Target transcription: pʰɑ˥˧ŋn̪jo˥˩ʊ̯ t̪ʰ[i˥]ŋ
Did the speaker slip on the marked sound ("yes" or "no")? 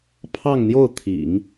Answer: yes